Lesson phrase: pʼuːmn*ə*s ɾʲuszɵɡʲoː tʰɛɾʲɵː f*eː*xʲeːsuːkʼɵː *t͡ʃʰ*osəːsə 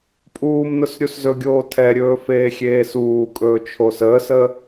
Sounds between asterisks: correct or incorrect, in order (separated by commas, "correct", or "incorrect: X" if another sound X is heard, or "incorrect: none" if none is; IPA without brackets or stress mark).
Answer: incorrect: ʊ, correct, correct